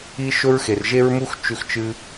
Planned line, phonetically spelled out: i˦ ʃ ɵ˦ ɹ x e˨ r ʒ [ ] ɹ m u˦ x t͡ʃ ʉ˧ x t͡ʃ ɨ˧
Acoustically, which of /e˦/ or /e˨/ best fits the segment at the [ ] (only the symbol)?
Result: e˦